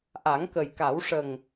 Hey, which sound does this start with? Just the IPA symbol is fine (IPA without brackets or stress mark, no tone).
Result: ʔ